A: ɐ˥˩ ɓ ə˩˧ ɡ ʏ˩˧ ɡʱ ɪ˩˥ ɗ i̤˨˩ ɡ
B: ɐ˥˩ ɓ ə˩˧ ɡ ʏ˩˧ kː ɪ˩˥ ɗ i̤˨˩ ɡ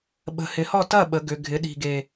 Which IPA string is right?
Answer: A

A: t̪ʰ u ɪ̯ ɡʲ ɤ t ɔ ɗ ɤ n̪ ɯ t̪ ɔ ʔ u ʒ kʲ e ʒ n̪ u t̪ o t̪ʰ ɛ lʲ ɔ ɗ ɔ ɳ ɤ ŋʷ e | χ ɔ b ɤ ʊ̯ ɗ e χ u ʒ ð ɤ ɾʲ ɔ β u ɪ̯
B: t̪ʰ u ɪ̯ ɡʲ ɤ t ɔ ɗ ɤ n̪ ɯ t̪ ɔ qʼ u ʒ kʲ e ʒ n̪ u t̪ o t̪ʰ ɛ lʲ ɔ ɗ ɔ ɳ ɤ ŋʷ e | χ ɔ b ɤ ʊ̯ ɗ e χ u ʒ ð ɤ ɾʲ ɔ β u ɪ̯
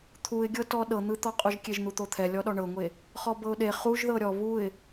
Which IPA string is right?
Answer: B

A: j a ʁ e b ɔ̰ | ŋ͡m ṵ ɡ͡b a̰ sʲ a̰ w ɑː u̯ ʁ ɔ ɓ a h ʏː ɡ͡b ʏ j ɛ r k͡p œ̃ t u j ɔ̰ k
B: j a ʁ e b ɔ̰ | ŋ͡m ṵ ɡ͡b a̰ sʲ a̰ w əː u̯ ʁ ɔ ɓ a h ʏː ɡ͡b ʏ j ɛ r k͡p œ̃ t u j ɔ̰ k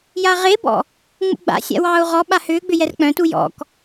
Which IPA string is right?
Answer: A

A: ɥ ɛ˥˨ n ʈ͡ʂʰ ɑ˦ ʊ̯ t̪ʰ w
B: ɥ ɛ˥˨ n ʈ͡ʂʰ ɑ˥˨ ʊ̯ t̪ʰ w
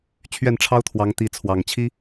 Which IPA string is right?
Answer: A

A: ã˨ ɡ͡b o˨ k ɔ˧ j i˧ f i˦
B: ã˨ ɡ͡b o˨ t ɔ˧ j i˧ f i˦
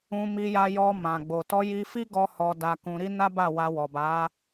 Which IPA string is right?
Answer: B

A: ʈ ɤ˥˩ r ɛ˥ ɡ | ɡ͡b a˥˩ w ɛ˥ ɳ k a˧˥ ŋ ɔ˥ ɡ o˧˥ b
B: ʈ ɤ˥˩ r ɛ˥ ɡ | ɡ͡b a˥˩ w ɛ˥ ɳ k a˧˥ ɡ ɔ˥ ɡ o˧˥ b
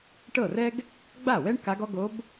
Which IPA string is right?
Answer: B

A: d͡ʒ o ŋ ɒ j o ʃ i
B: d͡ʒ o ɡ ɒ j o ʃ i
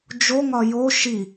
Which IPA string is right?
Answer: A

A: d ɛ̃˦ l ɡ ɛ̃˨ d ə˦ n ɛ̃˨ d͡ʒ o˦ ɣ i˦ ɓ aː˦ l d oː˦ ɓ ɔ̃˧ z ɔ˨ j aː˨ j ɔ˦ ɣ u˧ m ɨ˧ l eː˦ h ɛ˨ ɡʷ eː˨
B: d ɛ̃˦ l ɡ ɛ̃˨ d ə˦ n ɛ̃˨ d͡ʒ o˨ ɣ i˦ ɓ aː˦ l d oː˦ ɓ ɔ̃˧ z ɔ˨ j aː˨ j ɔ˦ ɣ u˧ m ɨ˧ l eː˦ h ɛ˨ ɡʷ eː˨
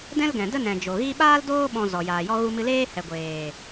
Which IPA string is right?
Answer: B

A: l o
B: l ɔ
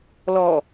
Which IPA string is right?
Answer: B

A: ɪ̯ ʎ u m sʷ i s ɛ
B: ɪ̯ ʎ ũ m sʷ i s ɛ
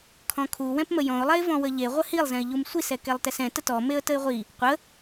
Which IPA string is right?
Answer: A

